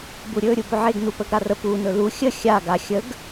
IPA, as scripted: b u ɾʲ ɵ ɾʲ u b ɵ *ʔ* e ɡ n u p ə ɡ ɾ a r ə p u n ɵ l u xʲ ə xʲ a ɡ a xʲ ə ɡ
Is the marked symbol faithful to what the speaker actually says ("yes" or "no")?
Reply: no